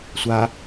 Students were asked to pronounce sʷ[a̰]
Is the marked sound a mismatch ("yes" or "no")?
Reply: yes